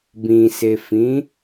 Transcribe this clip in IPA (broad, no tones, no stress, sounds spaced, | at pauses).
b ĩ s e f ĩ